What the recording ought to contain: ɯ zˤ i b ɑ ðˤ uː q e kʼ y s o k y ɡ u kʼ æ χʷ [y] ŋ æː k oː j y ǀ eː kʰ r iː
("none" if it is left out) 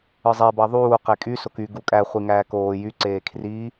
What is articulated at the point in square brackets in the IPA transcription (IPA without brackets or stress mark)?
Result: i